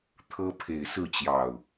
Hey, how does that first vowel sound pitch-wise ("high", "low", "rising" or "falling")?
high